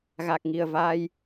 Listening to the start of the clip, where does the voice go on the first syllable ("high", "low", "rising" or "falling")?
low